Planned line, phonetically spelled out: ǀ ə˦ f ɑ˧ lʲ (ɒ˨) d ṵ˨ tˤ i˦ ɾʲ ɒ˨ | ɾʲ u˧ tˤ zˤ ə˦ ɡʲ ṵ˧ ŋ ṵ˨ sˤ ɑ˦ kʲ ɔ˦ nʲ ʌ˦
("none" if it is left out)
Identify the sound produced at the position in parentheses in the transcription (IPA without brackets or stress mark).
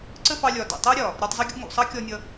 ɒ˨